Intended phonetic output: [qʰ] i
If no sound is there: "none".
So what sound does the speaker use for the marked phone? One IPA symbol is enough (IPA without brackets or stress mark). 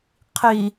qʰ